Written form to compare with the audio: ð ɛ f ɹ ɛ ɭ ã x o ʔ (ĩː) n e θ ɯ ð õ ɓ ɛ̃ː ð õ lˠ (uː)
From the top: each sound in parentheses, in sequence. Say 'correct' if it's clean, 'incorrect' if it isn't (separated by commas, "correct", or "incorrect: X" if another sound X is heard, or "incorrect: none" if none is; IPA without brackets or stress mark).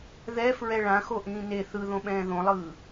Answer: correct, incorrect: ɯː